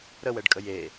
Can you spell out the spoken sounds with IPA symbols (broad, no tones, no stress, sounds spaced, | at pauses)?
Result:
ɾ ə w ɛ ɖ kʼ ə j e